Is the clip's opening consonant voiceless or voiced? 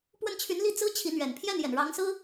voiceless